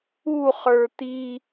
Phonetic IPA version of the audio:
u χə˞t̪i

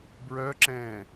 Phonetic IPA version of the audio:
bɹœǁɛ̃ː

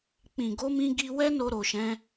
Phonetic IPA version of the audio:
k͡pĩ˨ɡo˧ mĩ˧ɡi˧wɛ˦no˧ ɾo˧ʃɛ̃˦

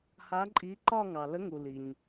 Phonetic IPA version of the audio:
ha˨˥ ǃʼi˨˥ǃɒ˥˧ŋɑ˩ lə˨˥ŋu˩ li˩ɲ

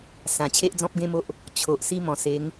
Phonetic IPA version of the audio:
sã˨˩ t͡ɕʰe˦ʔd͡zɔ̃˦p̚ɡẽ˦mo˦ʔ | t͡ɕʰo˨ʔ si˦mɔ̃˨˩ se˨˦ŋ

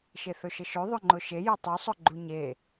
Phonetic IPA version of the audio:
ʃeθɵʃəʃɵ ðˤɵŋ͡ǃʊʃeje tˤesˤɵɡ͡ǃu ɲe

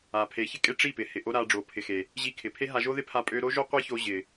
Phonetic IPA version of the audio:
a˨pʰe˨˦çɪ˦kʼe˦ ʈ͡ʂi˦˨pɪ˨ hɪ˨ʔo˦ɾa˧ ɖ͡ʐo˨pʰɪ˨xe˨ | ʑi˧kʰɪ˨ pʰe˦ ɦa˧ʒo˦ðɪ˦pʰa˧ pʼø˧ɾo˦ʒo˦ qʷi˦ço˧ ʑɪ˨

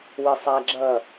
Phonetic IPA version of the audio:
wɪsˤæɡ͡ǁʌ

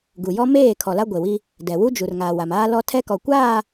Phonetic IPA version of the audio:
ɡu˨jɔ˦ meː˦˨ kʰɔ˨la˦ɡʷe˨wi˦ | dɛ˨ wu˦d͡ʒu˨rŋa˨ wa˨maː˦lɔ˦ tʰɛ˦kɔ˨kʷaː˦˨

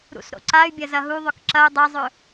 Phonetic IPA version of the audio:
ɾṵsɾo̰ǀay̯bʲɐ zɐɦuðˤɵk ǁɐu̯ dˤɐzˤɵ

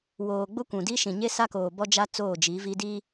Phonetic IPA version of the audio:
woː˨ɡ͡bʊ˦ kʷũ˨di˦ ʃĩ˨ɲe˦sa˦koː˨ bɔ˦d͡ʒa˦ t͡soː˦˨d͡ʒi˨˦vi˦ di˦

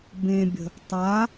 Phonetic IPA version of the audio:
bẽbʲə̤ | tˤa

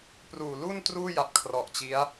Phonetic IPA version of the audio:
pruː˨˩lu˥˩n truː˥˩ja˨˩p̚ kʰrɔ˨˩ʔt͡ɕi˦˥a̯

